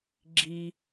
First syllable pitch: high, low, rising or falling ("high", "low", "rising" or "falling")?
low